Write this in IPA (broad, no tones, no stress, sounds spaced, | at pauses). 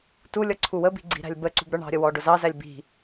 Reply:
t u lʲ ʌ ǀʰ u w ə b i̤ ɡ͡ǀ i̤ ɾ æ̤ lʲ b ə ǀ ṳ b ɾ ə˞ ɳ ɑ̤ ɾʲ ə w ɔ ɖ ʊ z ɑ z æ lʲ b i̤